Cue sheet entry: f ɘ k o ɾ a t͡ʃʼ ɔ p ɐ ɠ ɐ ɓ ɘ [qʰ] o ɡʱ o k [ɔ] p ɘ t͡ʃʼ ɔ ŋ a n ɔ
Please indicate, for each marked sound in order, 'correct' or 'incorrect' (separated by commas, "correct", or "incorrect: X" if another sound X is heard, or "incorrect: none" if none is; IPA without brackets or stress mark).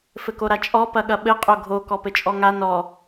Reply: incorrect: qʼ, correct